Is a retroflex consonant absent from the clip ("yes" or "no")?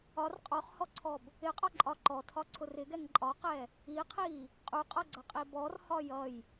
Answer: yes